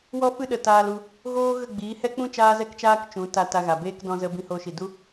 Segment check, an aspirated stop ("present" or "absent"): absent